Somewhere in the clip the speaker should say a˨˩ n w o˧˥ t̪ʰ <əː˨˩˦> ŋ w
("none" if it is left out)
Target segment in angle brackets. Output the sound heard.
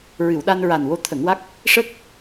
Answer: ə˨˩˦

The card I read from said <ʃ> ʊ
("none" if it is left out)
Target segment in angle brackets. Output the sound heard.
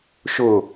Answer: ʃ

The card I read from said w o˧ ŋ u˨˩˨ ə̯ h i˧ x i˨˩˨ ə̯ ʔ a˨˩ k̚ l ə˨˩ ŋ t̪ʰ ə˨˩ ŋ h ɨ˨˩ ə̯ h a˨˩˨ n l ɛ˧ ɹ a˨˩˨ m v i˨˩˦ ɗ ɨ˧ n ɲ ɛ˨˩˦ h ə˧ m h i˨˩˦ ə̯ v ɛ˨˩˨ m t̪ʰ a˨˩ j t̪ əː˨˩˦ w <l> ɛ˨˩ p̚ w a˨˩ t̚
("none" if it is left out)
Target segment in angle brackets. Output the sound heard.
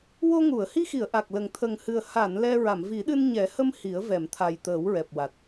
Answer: ɹ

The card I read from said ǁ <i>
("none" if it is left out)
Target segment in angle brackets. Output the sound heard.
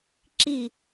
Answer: i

